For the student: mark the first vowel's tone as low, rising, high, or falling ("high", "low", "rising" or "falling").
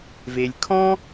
low